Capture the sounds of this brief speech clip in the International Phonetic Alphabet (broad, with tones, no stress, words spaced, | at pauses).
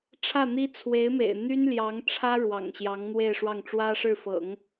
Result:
ʈ͡ʂʰä˥˩n̪i˥ t͡sʰwe˧˥ɪ̯mḛ˨˩ɪ̯ n̪y˥nljɑ˧˥ŋʈ͡ʂʰä˥ ɻwɑ̰˨˩ŋɕjɑ˧˥ŋn̪we˥˧ɪ̯ʂwɑ˥˩ŋ ʈ͡ʂwä˥ʂɻ̩˥˩fɤ̰˨˩˦ŋ